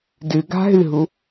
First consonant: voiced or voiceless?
voiced